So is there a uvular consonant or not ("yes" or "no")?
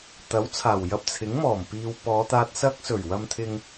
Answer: no